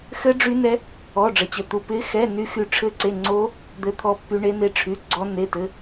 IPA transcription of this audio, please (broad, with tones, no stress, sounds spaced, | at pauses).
x ɘ˦˥ ɖ͡ʐ y˦˥ n ɛ˦˥ | ɔ˧˥˧ ɖ͡ʐ ə˧˥˧ t͡ɕ ə˧˥˧ t̪ u˧˥˧ p ɪ˦˥ x ɛ˧˥˧ n y˦˥ x y˦˥ ʈ͡ʂʰ ɘ˦˥ ǀ e˧˥˧ ŋ͡ǀ o˦˥ | d̪ ɘ˦˥ t̪ʰ ɔ˦˥ pː y˦˥ ɳ e˦˥ n e˦˥ ʈ͡ʂʰ y˧˥˧ ɡ͡ǀ ɔ˦˥ nː e˧˥˧ t ɘ˧˥˧